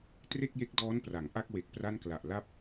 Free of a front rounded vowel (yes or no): yes